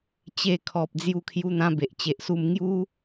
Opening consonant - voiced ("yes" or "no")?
no